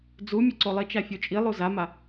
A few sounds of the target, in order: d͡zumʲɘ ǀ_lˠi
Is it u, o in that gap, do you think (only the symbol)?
o